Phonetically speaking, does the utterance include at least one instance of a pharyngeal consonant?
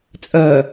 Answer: no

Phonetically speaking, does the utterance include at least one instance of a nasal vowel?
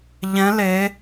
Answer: yes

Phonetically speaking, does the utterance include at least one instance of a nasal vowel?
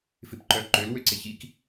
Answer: no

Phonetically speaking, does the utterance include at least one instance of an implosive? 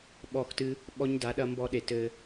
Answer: yes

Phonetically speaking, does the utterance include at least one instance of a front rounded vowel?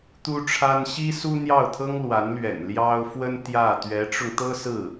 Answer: no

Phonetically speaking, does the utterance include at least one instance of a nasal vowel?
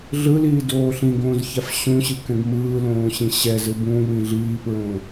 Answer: yes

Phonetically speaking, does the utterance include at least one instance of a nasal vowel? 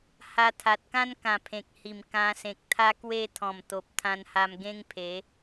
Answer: yes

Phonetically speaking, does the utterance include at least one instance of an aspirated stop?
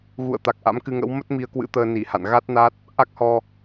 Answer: no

